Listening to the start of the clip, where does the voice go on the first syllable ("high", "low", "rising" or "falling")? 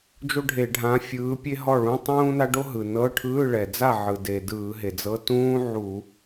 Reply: high